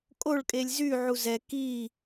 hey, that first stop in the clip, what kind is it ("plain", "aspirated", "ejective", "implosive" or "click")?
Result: ejective